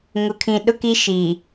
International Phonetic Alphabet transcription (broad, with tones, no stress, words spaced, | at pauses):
ŋʊ˨kʰĩ˨ɗʊ˦ ki˦ʃi˨